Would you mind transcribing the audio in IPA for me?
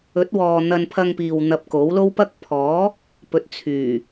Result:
ɵ˨˥ t̚ w ɔː˨ n̪ ɐ˧ n pʰ ɐ˧ ŋ p iː˨ w n̪ ɐ˧ p̚ k o˨˥ w l o˥ w p ɐ˥ k̚ pʰ ɔː˨˥ | p ɵ˨˥ t̚ t͡sʰ yː˨˩

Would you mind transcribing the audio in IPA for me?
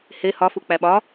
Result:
h e h ɒ f u k͡p æ ɓ ɒ

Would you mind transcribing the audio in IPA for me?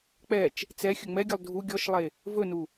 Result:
k͡p ɛ t͡ʃ | t͡s ɛ xʲ ɵ ŋ͡m ɛ ɡʲ ɵ lˠ dʱ u ɡʲ ɔ ʃ lˠ e | v ɵ n u

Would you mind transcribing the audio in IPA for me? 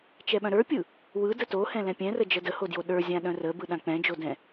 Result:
t͡ʃ ɛ ɓ œ̃ ɾ ə˞ pʲ ɯ | w ɯ d ə t o h ɛ̃ l ɛ̃ pʲ ɛ̃ r ə d͡ʒ ə d ə h o d j o ɗ ə˞ zʲ ã ɗ œ̃ r ə b ɯ ɗ ã k͡p ɛ̃ d͡ʒ o d ɛ̃

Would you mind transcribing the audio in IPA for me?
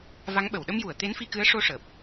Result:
v a˧˥ ŋ ɓ ə˨˩˨ w ɗ ə˧ m j u˨˩˨ ə̯ t̪ e˧˥ n f i˧ k ɨ˧˥ ə̯ ʂ o˧ ʂ əː˨˩ p̚

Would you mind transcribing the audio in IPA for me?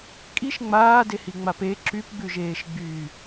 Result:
kʼ i ʃ ŋ͡m aː d e h i ŋ͡m a p e ǁ y p ɡ͡b ʉ ʒ eː ʃ ɡ͡b yː

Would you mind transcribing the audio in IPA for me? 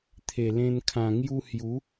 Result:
t̪ʰ e˨˩ l ẽ˧ n kʰ ã˨˩ ŋ j u˧ h j u˨˦

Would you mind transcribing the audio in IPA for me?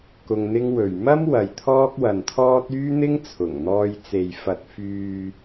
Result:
k ʊ˧ ŋ n̪ ɪ˥ ŋ w ɵ˨ ɥ m ɐ˥ m w ɐ˨ j t̪ʰ ɔː˥ k̚ w ɐ˨ n t̪ʰ ɔː˥ t̚ yː˥ n̪ ɪ˥ ŋ t͡sʰ ʊ˨˩ ŋ n̪ ɔː˧ j t͡s e˨ j f ɐ˨ t̚ f yː˨

